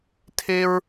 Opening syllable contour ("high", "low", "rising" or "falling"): high